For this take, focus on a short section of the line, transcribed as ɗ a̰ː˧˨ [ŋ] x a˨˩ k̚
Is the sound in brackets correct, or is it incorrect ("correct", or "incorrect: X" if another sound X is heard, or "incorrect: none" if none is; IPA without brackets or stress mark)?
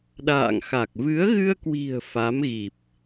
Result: correct